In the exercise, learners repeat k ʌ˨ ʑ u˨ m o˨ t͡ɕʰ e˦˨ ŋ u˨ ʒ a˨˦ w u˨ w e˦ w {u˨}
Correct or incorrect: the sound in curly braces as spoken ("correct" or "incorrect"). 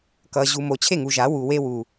correct